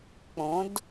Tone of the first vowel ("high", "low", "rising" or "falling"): rising